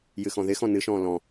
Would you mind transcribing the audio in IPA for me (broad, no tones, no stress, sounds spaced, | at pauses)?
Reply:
j ɨ x ɔ̃ ð ɪ x ɔ̃ n ɨ ʃ ɔ̃ː l ɔ̃